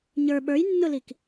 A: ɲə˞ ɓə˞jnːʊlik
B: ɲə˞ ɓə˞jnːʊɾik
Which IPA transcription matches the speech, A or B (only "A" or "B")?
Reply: A